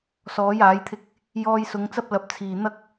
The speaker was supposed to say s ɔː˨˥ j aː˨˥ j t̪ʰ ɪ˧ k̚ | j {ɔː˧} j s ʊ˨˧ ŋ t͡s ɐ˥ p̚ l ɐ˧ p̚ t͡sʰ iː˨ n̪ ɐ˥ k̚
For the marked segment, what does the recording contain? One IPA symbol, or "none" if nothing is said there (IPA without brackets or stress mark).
ɔː˧